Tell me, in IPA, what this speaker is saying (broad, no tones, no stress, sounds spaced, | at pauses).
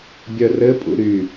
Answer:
bʲ œ r ɘ pʼ ṵ ɾ y